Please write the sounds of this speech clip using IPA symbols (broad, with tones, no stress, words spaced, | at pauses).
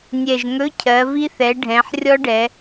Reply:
nʲɛ˨˩ʒŋɵ˧˥˧cʰɜ˩˧vi˦˥ θɛ˩˧ɖʱɛ̃˩˧ħrʲɔ˦˥ɖɛ˩˧